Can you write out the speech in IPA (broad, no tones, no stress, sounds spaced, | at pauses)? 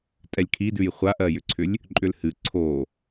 tʼ ɛ lʲ kʰ i d ʉ j χʷ a ʔ ɜ j ʏ ǀʰ ʏ lʲ | ǃʼ ʏ l h ɨ ǀʰ o